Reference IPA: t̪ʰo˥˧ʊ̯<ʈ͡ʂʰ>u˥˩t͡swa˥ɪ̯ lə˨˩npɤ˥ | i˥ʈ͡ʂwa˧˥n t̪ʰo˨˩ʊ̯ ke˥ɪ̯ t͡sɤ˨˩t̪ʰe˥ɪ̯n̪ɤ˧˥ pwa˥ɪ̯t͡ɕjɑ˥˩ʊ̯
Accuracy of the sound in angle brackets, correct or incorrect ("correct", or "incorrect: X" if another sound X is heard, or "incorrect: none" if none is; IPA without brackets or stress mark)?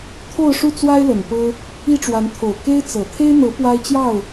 incorrect: ʂ